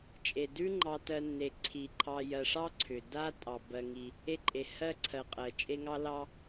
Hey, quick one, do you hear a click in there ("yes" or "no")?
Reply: yes